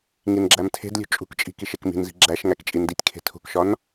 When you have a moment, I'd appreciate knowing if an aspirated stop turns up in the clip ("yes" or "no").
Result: yes